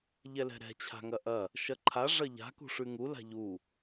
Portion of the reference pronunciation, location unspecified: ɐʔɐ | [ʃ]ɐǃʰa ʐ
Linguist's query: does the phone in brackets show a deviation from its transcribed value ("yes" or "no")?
no